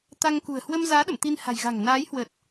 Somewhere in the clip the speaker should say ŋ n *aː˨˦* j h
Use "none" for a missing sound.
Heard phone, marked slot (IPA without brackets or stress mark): aː˨˦